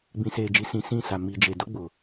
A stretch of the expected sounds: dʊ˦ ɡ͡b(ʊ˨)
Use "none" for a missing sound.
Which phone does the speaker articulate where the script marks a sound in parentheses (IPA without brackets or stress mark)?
ʊ˨